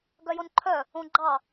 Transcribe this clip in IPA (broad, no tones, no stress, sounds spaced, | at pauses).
ɡ œ j o n ǃʰ œ | õ ɡ͡ǃ ɑ